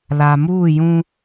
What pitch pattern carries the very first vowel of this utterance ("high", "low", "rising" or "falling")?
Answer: low